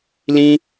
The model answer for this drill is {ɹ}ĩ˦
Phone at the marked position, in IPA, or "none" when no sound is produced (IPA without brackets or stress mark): l